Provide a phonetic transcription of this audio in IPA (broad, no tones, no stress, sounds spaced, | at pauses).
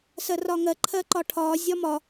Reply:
s ɜ r ɒː ŋ ɜ ǃʰ ɜ ǃ ɒ ʈʰ ɒː zʲ ɒ m ɒ